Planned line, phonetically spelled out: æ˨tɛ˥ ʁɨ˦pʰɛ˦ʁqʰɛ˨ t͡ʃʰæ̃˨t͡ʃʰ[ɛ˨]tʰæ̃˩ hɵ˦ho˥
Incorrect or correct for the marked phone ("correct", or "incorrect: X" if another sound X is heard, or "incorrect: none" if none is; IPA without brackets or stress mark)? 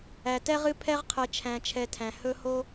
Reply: correct